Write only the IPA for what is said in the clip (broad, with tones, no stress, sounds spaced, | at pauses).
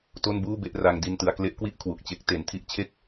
t o˥˩ n b uː˥˩ b e˦˥ ʔ r a˧ ŋ d i˧ n t ɯ˩˦ a̯ k l e˦˥ ʔ k w i˥˩ ʔ kʰ w u˨˩ k̚ t͡ɕ e˦˥ k̚ t e˩˦ n tʰ i˦˥ ʔ t͡ɕʰ e˥˩ k̚